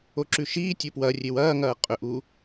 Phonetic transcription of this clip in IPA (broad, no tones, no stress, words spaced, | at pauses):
oǁʉʃiːtʲo pwɐrʲew ɐːŋɐː qʼɵʔ u